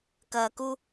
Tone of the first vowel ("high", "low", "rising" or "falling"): low